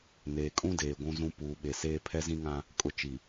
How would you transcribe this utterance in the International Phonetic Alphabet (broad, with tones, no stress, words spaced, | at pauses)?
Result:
neː˨kʼũ˦deː˨ ɡʷũ˦zũ˦ puː˨ɓe˨seː˦ pʰɛ˦zĩ˦ŋã˦ | kʼʊ˨ t͡ʃi˨